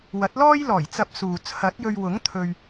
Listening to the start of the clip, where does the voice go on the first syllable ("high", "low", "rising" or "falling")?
rising